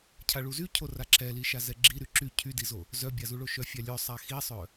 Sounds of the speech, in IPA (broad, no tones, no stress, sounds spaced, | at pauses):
cʰ a ɭ u z y cʰ o r a ǁ ɛ l i ʃ a z ɛ ɡ͡ǁ i ɾ y ǁ y cʰ y d i z o | z œ bʲ a z u ɭ o ʃ œ fʲ a lʲ œ sˤ a x i sˤ œ